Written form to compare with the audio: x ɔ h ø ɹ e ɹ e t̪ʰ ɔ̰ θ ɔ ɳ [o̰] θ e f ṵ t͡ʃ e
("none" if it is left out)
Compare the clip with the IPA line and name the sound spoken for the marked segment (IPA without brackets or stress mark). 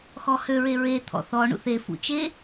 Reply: ṵ